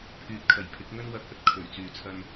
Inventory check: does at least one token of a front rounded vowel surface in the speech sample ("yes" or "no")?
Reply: yes